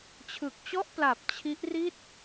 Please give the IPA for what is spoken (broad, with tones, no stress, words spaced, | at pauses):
t͡ɕʰɯ˨˩k̚t͡ɕɔ˥˩ʔpla˨˩p̚ t͡ɕʰi˦˥ʔ ri˥˩t̚